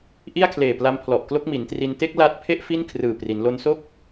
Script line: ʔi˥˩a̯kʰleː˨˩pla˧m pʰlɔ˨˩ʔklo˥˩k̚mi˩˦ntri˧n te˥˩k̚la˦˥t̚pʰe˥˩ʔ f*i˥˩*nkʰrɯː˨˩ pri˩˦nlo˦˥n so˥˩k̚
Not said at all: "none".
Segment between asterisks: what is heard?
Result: i˥˩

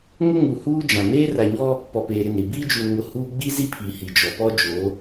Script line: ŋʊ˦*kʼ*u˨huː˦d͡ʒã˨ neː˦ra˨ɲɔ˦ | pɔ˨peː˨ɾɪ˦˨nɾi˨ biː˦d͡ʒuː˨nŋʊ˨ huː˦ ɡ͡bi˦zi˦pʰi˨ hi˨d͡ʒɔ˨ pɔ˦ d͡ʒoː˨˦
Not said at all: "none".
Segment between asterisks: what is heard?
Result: ŋ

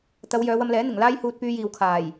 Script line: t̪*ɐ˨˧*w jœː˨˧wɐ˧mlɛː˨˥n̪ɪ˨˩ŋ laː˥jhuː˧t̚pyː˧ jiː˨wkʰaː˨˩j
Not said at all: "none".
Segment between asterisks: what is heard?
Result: ɐ˨˧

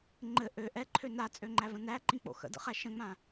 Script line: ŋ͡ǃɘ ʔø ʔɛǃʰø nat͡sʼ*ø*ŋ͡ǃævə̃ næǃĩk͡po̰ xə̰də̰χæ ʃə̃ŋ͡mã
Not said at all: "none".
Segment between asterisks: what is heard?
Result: ø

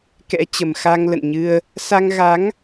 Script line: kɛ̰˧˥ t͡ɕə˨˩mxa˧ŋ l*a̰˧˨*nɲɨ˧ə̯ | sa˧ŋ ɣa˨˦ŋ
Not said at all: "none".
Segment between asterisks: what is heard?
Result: ə̰˧˨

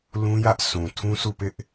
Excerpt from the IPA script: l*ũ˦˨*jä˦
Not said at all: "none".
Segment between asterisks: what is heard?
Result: ũ˦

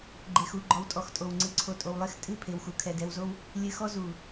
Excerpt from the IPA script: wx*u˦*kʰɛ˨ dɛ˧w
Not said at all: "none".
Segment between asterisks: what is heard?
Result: u˨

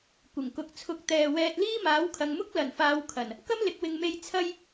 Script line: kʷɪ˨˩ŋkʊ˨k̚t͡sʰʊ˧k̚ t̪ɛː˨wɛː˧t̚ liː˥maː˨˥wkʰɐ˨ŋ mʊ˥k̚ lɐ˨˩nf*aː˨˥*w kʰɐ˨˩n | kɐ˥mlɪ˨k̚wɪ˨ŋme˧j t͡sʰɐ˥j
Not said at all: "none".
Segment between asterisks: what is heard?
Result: aː˨˧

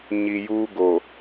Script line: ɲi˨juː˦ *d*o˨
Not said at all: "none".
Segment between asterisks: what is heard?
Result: ɡ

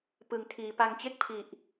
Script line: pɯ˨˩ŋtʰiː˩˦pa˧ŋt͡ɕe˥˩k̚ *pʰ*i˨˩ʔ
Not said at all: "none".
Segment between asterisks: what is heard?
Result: pʰ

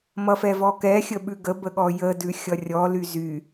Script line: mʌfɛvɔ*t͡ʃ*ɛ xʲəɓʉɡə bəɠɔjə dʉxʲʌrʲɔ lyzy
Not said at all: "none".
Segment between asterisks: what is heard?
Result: k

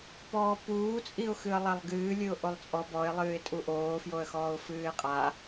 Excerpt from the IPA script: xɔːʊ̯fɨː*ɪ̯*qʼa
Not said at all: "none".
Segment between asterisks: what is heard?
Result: ɪ̯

